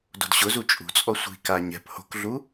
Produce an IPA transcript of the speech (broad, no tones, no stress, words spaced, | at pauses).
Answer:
do̤dɕʊzu t͡ʃʼṳt͡sʼɔ sʷi̤ka ɲɛ̤p ho̤kɮu